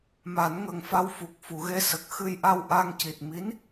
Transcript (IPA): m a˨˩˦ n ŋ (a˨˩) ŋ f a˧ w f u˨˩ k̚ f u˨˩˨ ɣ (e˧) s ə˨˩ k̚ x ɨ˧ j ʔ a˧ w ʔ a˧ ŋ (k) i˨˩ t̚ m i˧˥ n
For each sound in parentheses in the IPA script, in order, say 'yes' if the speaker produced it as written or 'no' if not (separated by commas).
no, yes, no